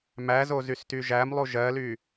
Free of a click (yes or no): yes